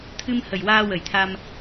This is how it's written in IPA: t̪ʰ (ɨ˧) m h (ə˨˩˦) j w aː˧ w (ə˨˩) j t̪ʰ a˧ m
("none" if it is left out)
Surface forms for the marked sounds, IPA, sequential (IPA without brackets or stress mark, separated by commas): ɨ˧, ə˨˩, ə˨˩